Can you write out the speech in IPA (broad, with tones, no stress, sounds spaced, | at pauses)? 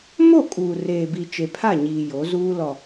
m o˦˨ kʼ uː˨ r eː˨ b i˨ t͡ʃ e˨ pʰ a˦˨ ɲ iː˨ j o˨˦ z uː˦ l ɔ˨